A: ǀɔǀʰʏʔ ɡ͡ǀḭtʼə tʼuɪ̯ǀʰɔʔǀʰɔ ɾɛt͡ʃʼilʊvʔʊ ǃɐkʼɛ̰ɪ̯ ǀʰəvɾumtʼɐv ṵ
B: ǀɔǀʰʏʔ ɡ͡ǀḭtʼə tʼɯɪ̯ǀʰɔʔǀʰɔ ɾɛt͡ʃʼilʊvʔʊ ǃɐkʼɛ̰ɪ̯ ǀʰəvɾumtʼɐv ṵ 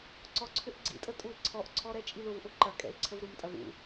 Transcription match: A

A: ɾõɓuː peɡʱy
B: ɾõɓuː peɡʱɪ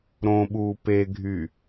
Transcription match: A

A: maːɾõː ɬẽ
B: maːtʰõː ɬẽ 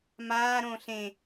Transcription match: A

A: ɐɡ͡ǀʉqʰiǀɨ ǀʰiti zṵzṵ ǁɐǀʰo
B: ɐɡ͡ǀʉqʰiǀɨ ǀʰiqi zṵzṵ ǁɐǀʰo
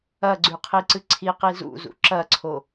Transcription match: B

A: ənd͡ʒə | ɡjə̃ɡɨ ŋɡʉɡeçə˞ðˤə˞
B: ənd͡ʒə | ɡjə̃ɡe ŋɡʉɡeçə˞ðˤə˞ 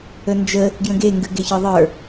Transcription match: B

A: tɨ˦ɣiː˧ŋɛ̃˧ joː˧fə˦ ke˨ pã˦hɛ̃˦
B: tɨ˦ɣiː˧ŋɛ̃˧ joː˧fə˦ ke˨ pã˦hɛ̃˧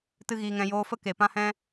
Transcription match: A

